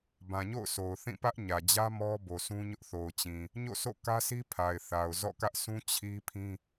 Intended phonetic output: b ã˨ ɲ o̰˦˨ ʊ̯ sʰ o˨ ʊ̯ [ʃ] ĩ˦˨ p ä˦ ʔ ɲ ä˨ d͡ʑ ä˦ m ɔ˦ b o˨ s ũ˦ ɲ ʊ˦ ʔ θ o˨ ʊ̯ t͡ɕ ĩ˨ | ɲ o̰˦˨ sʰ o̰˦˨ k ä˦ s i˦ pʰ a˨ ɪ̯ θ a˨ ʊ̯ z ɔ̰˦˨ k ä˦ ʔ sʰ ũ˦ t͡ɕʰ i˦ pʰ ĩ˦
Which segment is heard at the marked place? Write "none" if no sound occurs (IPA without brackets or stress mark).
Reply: θ